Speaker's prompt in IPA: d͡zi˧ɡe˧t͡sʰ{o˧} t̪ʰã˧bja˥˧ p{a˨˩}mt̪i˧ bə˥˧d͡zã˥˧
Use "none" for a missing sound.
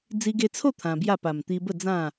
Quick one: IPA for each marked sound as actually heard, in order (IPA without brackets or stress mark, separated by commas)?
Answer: o˥˧, a˨˩